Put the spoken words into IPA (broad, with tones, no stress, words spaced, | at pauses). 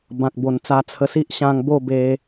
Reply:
bã˨k̚bo˨˩nt͡sa˧t͡sʰə˧ si˦ʔɕã˧ŋbo˥˧ be˧